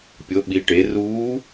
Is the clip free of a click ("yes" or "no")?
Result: yes